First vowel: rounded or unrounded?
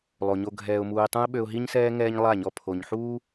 rounded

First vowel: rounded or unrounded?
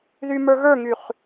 rounded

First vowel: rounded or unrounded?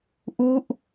rounded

